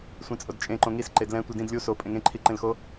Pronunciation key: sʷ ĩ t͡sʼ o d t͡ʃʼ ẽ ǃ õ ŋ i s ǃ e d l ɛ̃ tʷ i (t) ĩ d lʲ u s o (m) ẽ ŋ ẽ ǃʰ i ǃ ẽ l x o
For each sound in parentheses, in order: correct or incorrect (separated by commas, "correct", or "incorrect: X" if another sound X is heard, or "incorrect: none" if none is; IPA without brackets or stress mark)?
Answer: incorrect: d, incorrect: pʼ